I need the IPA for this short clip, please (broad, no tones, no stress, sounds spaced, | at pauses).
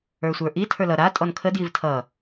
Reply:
ə˞ sʷ ə˞ ʔ i tʰ ə˞ l ʌ ɾ a tʼ ɔ n kʰ ə d j i v tʰ ʌ